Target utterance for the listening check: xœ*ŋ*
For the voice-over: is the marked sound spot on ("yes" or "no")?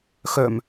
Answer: no